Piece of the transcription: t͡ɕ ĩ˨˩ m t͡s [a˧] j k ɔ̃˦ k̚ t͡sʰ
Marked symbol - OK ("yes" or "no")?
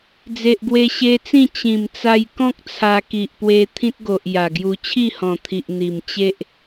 yes